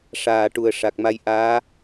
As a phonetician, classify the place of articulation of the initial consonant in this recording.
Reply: retroflex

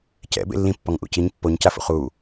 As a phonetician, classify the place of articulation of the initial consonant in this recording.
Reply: palatal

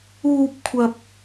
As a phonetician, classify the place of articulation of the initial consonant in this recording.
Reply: labial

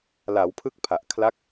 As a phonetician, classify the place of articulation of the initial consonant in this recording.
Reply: alveolar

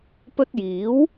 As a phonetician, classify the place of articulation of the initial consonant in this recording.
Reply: labial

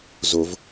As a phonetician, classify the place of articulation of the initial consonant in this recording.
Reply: alveolar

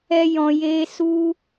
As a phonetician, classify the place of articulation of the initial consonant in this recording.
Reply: palatal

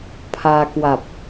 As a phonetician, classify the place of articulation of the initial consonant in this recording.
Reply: labial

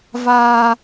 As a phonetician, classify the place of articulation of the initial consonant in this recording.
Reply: labial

